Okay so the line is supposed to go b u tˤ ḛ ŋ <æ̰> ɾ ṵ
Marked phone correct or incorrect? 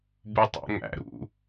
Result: correct